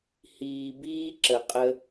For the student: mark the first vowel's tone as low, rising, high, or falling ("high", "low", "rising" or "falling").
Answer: low